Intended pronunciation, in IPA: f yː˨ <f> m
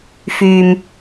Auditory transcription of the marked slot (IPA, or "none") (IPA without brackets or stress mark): none